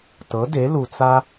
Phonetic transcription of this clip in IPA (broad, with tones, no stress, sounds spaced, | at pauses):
t ɤ˨˥ d e˨˥ l u˧ t͡s a˥